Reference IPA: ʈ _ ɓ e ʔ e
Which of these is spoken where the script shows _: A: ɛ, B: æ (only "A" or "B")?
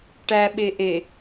B